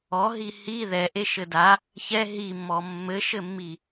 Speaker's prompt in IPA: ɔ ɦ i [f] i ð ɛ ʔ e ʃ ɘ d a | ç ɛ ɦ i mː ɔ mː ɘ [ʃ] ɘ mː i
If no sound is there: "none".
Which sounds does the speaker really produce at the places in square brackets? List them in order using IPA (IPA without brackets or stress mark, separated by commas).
h, ʃ